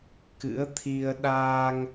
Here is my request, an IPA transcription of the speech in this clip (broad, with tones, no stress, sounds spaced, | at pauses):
k ɨ̰˧˥ ə̯ t̪ʰ i˧ ə̯ ɗ aː˧ ŋ